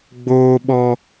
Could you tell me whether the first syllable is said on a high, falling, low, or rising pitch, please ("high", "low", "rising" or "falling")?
high